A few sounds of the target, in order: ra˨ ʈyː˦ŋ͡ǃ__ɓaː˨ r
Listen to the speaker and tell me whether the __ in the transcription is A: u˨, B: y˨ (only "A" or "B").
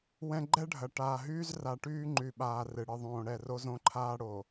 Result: B